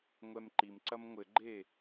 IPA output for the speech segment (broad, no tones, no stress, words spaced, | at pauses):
ŋʷɛmǃimǀɐm ŋʷɘɡ͡ǃeː